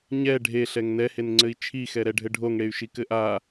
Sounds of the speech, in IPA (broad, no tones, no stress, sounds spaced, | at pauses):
ɲ ɛ ɖʱ e ɬ ɛ ŋ n ɛ h e n ŋ͡ǀ ɘ i̯ t͡ʃʰ i x ɛ ɾ ɛ ɖʱ ɘ ɖʱ o ŋ ɽ e y̯ ʃ i k ɘ ʔ a